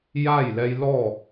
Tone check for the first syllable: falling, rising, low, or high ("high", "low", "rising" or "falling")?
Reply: falling